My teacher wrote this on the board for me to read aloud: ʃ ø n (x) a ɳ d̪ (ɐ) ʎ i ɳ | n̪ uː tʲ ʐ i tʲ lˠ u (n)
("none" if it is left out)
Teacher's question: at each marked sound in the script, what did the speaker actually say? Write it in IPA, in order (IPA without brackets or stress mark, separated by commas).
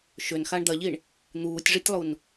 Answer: x, ɐ, n